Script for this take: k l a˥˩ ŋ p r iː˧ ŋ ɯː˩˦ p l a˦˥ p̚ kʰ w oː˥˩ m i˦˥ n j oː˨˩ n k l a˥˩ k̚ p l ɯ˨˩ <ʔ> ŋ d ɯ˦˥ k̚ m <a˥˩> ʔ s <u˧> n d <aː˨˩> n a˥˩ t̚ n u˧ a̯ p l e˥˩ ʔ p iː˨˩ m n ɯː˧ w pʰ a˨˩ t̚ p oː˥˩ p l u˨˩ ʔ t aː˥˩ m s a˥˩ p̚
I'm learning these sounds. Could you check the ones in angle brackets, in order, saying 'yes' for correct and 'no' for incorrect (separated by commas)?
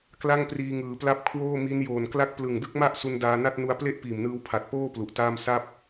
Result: no, yes, yes, no